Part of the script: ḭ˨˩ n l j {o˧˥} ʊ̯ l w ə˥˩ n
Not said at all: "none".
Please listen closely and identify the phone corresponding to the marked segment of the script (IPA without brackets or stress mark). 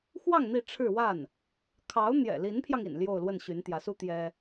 o˥˧